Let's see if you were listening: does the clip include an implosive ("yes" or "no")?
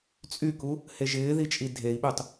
yes